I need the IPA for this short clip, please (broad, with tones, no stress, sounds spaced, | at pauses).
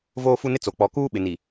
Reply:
v oː˦ f u˦ n ɪ˦ t͡s o˨ k͡p ɔ˨ k uː˦ ɓ ɪ˨ n i˨